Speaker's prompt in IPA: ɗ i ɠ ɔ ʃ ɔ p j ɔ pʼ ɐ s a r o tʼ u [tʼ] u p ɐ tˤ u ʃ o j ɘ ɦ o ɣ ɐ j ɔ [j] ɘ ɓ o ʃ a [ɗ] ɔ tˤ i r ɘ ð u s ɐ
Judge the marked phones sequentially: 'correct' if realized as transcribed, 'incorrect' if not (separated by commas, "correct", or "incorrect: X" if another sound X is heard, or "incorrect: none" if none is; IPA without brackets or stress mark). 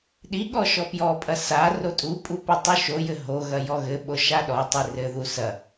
incorrect: pʼ, incorrect: ɣ, correct